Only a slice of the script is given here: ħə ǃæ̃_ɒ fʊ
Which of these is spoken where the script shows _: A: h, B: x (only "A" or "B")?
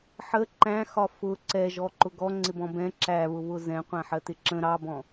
B